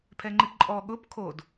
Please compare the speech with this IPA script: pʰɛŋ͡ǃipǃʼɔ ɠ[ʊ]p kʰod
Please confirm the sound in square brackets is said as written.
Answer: yes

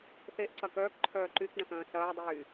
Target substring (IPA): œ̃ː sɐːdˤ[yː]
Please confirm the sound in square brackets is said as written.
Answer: yes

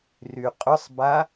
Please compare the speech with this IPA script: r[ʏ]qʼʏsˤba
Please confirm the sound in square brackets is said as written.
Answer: no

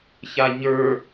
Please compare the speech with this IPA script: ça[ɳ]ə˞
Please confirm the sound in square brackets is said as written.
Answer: no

